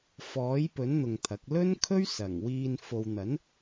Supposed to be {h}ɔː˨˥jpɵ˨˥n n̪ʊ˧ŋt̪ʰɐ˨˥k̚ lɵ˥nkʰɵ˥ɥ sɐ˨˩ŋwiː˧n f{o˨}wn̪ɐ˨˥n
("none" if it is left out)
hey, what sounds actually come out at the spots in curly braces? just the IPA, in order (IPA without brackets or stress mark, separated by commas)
f, o˨